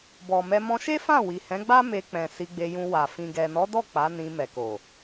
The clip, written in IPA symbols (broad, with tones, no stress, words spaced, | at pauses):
bɔ˨mɛ˧ mɔ̃˧ʃe˦fã˦˨ wi˨hɛ̃˨˦ɡ͡ba˦ me˧k͡pɛ̃˨ si˧ɡ͡be˧jũ˧ wa˨ fĩ˨ɡɛ˨nɔ˨˦dɔ˦˨ k͡pa˨˦nĩ˧ mɛ˨ko˨